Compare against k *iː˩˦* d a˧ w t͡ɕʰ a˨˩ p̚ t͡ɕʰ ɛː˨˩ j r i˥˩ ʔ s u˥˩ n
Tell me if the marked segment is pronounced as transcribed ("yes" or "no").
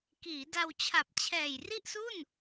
yes